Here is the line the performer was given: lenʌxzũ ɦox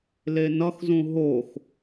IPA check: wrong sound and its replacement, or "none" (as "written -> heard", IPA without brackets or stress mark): none